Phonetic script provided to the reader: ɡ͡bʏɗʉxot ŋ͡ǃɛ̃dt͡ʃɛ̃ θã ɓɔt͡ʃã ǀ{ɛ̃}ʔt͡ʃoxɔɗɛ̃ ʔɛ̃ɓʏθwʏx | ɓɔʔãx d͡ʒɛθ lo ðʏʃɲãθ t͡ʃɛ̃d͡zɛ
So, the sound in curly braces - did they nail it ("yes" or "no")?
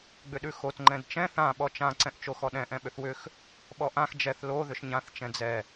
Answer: yes